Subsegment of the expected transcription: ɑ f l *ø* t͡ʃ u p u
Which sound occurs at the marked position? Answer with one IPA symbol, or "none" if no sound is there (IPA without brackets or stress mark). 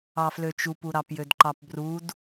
ø